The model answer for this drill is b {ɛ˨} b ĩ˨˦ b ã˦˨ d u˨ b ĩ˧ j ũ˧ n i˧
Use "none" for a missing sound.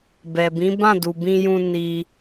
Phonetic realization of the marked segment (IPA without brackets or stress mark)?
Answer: ɛ˨